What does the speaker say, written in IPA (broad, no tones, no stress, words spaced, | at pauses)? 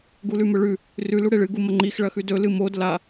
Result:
ɡulʉmɵɭʉ | rʉ luɽeɭɨ ɡumɐŋ͡ǃix ɭɐxʉdɵ lɨmod la